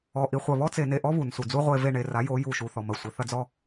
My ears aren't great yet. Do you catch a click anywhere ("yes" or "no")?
no